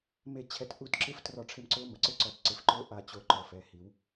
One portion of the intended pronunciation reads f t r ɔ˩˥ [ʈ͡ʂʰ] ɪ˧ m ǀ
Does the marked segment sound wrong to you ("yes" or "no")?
no